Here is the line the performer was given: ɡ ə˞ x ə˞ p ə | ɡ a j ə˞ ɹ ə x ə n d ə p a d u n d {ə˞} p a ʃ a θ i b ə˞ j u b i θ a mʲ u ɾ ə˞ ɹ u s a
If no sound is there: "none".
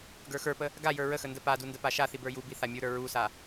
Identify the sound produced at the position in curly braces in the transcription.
ə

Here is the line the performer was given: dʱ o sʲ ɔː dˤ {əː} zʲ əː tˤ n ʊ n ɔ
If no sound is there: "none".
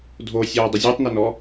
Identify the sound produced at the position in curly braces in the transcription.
ə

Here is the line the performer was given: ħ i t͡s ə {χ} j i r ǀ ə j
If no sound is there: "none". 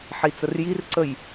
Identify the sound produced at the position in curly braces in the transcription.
r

